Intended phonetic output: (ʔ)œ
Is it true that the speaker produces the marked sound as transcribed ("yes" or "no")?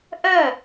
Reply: yes